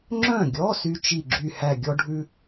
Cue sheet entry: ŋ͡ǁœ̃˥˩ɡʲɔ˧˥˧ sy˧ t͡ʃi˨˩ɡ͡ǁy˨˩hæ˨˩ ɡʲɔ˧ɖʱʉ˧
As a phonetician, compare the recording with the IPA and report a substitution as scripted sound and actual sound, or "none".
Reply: none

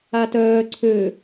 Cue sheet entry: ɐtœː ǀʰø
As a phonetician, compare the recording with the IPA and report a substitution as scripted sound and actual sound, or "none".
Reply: ɐ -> a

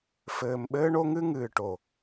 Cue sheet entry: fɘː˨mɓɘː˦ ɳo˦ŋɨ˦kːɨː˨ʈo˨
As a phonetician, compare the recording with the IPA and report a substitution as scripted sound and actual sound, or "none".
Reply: kː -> ŋ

